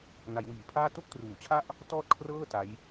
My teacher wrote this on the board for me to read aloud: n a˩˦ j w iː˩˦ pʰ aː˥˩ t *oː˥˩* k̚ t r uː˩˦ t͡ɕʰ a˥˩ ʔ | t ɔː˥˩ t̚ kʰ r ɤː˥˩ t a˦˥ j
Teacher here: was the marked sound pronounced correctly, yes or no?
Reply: no